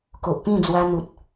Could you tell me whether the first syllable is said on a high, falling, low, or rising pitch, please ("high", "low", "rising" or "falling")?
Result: low